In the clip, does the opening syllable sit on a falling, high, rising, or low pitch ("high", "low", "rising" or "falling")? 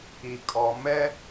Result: low